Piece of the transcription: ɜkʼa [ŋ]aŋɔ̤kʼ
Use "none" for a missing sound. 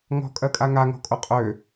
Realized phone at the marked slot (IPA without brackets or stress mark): ŋ